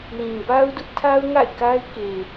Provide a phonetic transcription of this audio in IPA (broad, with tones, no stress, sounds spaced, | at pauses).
l ĩ˨ b a˦ ʊ̯ d ʊ˦ ʔ tʰ a˦ ʊ̯ ŋ a̰˦˨ ɪ̯ k a˦ ɪ̯ k e˨